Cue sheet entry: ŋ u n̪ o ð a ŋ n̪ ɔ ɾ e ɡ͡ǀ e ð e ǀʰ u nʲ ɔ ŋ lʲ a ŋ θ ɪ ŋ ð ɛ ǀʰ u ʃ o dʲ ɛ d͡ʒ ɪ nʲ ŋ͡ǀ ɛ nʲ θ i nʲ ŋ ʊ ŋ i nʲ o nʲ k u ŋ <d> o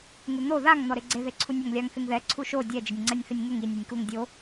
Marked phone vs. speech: incorrect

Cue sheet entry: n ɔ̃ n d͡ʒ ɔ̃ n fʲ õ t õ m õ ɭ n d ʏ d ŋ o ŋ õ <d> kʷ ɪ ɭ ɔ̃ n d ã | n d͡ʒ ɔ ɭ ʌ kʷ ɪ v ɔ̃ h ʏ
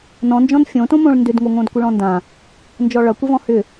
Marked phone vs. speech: correct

